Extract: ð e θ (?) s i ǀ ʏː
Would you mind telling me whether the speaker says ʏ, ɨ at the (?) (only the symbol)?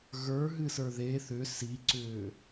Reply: ʏ